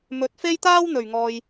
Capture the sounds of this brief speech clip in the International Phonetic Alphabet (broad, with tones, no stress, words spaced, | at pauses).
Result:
mɵ˨˥t̚fe˥jt̪aː˥w n̪ɵ˨˩ɥŋɔː˨j